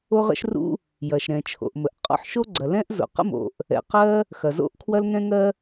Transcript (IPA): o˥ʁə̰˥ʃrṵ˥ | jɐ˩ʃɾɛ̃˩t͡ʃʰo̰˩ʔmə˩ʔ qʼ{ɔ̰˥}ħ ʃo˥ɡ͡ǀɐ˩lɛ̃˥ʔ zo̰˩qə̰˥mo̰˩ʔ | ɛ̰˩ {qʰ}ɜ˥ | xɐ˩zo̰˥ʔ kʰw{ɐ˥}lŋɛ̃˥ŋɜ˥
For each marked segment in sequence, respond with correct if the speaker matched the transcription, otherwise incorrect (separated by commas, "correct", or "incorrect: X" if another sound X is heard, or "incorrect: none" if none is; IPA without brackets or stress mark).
correct, incorrect: q, correct